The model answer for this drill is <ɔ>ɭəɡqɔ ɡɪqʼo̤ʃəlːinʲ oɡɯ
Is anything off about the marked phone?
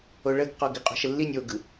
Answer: yes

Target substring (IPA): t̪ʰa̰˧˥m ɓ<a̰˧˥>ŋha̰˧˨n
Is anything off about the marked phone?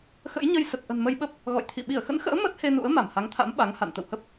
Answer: yes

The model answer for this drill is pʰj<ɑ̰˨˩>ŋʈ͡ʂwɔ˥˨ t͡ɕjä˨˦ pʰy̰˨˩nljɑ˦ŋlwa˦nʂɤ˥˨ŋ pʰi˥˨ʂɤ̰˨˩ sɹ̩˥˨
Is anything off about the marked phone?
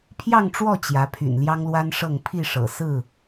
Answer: yes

